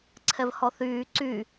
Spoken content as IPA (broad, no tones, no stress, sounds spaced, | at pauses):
ǀʰ ɛ v h ɔ θ yː ǀ y